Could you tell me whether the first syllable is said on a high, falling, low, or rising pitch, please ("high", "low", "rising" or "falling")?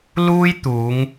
high